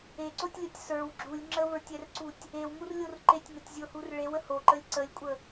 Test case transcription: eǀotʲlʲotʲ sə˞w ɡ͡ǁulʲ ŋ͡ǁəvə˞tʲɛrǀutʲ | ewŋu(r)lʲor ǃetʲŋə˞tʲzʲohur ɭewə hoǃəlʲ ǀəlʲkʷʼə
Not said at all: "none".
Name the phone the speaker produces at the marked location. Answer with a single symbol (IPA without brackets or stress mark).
r